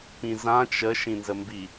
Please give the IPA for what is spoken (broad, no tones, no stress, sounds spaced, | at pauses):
p ĩ z ã t͡ʃ ə ʃ ĩ n z ə m b i